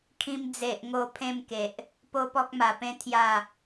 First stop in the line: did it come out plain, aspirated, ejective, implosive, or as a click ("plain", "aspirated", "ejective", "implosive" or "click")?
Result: aspirated